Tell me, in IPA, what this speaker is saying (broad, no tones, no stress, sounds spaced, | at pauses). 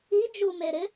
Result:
i d͡ʒ u m e ɾ ɪ